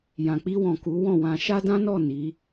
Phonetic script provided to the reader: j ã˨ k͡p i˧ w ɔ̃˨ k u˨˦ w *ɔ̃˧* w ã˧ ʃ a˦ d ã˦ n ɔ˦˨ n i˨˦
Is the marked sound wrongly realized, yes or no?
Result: yes